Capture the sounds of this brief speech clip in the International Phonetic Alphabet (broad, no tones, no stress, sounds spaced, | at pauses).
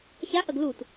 ɕ a ʔ ɐ ɡ l u t